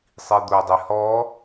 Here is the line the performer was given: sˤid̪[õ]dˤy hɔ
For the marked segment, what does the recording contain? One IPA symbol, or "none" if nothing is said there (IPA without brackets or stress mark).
o